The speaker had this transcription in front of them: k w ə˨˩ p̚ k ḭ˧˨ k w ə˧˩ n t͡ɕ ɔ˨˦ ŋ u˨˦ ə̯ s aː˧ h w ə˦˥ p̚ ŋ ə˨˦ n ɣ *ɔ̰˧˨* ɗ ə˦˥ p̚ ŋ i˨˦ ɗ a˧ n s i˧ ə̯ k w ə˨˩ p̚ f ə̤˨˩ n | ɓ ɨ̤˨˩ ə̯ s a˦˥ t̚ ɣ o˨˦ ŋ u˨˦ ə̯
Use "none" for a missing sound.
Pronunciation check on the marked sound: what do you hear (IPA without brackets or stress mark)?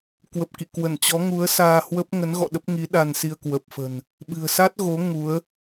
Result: ɔ̰˧˨